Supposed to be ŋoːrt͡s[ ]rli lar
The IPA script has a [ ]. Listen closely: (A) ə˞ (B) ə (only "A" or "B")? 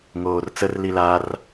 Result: B